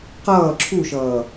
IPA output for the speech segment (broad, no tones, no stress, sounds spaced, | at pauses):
q ʌː ǁʰ u ʃ ʌː